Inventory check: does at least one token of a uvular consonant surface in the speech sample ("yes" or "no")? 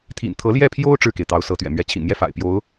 no